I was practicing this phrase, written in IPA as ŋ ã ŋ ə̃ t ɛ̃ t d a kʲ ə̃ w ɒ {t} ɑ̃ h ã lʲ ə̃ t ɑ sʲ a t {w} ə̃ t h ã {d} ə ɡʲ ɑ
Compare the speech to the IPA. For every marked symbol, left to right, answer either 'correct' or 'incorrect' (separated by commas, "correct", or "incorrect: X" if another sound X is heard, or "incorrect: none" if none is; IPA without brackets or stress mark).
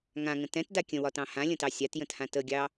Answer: correct, incorrect: j, incorrect: t